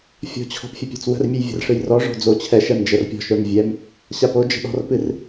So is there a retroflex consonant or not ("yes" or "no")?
yes